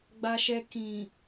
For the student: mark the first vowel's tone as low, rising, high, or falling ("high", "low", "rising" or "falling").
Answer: high